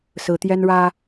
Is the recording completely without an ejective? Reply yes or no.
yes